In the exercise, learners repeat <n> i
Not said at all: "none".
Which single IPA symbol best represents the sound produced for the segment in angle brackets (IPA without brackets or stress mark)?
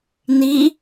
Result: n